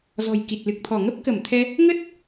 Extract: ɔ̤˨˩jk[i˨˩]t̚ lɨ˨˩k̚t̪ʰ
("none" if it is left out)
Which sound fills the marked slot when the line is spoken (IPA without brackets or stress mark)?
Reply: i˨˩